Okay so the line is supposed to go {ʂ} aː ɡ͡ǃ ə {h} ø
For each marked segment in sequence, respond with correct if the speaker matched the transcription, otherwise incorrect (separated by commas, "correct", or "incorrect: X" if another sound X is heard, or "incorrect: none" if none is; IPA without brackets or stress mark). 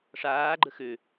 correct, incorrect: x